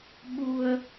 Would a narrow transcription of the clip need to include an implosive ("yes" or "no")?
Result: yes